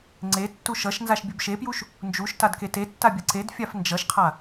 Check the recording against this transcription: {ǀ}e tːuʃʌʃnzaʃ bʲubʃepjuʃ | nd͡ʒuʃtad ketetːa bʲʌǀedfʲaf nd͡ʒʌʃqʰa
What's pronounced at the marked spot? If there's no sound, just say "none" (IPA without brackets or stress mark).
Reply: ŋ͡ǀ